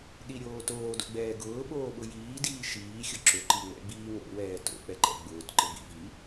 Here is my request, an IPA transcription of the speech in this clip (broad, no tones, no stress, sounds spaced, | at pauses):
ɗ i ɾʲ oː t oː d o̰ ɡ͡b ɛː ɡ ʊː ɓ oː ɓ ʊ j iː d iː ʃ iː xʲ ʊ ǁ ʊ ǃ i ŋ͡m ɛ̰ ɡ͡b iː ŋ o̰ w ɛː t o̰ k͡p ɛ ǃ ɛ̰ ɡ͡b ʊː t ǃ ɪ b ḭ v i